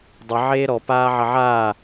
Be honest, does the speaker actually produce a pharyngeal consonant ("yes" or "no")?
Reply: yes